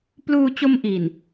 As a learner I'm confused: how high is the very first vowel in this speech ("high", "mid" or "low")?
high